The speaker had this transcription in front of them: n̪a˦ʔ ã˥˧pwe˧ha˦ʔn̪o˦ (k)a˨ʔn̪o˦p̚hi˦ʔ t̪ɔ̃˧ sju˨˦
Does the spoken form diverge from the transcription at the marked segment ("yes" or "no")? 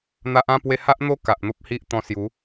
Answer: no